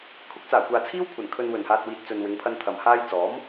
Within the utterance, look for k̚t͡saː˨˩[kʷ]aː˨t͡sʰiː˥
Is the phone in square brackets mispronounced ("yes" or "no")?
no